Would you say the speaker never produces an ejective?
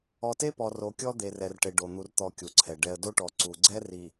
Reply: yes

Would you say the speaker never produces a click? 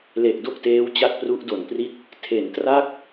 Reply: yes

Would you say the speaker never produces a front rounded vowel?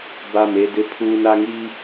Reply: yes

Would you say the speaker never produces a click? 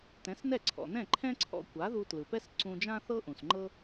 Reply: no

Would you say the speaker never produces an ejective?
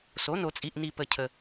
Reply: no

